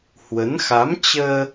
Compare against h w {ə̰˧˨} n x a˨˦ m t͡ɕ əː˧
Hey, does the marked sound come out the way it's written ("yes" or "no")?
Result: no